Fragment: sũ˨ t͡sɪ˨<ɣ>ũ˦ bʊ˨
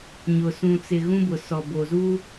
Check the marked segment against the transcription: correct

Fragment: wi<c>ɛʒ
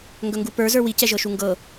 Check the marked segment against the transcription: correct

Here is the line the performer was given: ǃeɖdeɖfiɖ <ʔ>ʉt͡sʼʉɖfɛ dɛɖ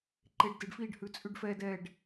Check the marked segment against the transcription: incorrect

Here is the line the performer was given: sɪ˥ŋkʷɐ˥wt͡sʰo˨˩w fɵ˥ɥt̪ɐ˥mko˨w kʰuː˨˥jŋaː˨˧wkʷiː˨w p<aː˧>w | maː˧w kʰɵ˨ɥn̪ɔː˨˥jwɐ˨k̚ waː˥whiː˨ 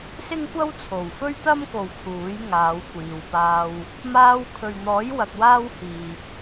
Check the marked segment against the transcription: correct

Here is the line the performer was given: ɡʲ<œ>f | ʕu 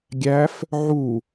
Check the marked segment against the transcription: incorrect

